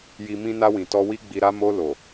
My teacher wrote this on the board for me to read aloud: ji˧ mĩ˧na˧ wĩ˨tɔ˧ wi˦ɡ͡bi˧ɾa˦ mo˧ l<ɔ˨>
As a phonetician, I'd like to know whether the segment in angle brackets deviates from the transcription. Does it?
yes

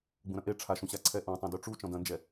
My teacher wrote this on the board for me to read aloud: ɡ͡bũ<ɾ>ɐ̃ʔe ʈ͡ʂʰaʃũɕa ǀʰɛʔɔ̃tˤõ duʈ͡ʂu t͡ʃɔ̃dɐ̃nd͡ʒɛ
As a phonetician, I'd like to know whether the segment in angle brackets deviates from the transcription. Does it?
no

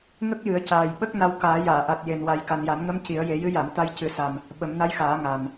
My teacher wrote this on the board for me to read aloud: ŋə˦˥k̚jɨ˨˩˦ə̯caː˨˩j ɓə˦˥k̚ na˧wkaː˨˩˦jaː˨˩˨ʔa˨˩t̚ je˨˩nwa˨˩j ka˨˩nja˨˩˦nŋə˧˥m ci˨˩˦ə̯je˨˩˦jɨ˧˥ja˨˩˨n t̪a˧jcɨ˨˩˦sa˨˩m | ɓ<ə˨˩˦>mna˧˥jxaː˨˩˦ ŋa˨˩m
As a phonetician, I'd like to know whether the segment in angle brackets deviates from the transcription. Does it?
no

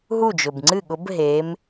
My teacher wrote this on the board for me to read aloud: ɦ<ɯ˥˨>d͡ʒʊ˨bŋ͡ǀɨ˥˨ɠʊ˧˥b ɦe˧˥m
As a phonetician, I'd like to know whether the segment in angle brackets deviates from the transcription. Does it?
yes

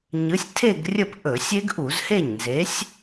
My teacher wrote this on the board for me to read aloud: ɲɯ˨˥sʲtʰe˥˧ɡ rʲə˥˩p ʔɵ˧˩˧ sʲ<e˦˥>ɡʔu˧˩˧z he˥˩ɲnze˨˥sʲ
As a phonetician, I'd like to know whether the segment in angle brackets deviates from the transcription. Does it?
no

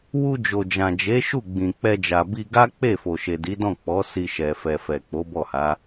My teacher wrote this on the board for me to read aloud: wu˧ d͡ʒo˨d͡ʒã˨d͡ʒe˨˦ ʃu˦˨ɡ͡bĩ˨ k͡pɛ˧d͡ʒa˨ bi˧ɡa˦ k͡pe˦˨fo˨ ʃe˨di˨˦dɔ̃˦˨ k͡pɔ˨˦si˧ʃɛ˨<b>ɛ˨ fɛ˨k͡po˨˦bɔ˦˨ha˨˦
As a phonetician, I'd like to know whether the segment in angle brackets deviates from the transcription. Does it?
yes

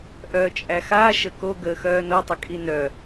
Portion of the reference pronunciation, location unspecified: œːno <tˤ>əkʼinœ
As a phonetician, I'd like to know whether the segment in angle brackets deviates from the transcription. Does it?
no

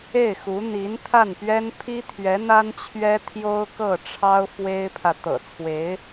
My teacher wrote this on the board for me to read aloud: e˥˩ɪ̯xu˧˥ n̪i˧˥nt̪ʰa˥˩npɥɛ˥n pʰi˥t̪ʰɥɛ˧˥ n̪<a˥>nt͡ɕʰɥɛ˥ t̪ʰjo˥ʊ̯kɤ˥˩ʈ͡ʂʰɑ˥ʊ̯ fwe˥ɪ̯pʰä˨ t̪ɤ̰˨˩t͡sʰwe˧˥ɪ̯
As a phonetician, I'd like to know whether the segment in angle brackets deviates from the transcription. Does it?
no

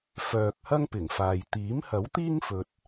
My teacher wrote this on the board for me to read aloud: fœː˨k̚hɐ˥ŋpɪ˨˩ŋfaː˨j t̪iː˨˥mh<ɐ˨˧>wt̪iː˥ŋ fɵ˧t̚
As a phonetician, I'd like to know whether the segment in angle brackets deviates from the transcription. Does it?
yes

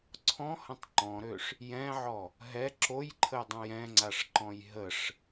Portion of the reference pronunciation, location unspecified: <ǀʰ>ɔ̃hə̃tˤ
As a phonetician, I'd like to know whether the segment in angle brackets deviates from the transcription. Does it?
no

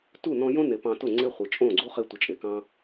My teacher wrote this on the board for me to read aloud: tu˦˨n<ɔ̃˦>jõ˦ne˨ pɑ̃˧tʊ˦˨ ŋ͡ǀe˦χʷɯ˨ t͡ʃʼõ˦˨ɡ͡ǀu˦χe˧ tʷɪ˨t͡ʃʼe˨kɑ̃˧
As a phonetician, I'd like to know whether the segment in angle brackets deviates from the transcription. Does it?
yes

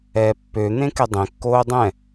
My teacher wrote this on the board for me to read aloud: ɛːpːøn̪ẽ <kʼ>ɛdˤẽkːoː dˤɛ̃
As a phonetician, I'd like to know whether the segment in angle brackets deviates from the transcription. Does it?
yes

